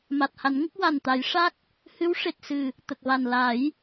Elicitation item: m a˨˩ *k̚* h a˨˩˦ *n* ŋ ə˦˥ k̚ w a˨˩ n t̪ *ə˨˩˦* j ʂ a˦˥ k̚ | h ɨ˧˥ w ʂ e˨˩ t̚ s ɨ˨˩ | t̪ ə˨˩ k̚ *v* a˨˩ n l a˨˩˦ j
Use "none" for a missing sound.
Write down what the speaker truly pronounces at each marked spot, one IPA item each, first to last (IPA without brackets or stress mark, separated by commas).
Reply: t̚, n, a˨˩˦, v